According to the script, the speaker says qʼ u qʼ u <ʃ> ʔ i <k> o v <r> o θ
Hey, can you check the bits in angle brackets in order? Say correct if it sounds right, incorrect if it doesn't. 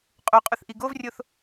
incorrect: θ, incorrect: ɡ, incorrect: rʲ

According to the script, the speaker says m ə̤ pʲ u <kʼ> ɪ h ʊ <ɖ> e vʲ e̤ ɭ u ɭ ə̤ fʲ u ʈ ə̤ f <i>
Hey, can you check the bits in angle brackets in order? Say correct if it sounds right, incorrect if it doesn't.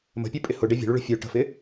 incorrect: pʼ, correct, incorrect: ɪ

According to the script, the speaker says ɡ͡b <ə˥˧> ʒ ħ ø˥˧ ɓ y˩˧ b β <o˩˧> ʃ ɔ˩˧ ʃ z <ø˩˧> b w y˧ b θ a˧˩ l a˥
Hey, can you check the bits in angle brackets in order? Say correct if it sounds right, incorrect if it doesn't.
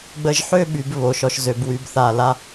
incorrect: ə˧, correct, correct

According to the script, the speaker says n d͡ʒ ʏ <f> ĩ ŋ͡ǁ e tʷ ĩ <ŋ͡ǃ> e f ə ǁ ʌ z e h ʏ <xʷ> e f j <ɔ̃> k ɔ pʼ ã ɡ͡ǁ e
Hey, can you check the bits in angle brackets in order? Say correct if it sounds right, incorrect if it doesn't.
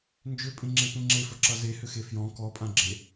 incorrect: pʼ, incorrect: ŋ͡ǁ, incorrect: x, correct

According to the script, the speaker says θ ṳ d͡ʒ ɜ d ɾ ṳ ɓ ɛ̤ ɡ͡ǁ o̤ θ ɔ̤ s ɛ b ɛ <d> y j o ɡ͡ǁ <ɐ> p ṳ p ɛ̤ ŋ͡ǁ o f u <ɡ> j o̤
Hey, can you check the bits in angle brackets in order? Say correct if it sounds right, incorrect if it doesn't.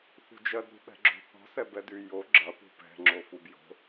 correct, correct, incorrect: b

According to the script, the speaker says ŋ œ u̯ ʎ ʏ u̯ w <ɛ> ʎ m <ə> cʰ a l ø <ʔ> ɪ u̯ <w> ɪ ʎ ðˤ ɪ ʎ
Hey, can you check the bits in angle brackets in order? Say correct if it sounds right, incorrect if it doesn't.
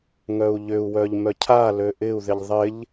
incorrect: œ, incorrect: œ, correct, incorrect: ð

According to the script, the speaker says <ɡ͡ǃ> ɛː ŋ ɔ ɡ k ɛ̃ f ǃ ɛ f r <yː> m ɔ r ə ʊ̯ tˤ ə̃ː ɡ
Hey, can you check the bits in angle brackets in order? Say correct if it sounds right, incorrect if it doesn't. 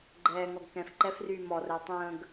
correct, correct

